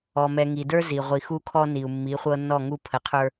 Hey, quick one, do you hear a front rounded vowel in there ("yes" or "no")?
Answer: no